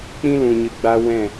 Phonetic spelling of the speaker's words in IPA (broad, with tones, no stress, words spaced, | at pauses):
k͡pĩ˦lũ˨ɲɨ˨ ɡ͡ba˧ wɛ̃˦˨